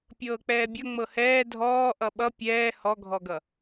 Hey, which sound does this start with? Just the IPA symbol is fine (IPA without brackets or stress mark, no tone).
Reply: pʲ